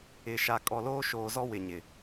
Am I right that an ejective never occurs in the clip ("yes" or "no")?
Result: no